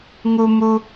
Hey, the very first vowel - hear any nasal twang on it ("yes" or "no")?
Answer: no